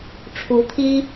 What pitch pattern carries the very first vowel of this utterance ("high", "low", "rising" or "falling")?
rising